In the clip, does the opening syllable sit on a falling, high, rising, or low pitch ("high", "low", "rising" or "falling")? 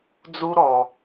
high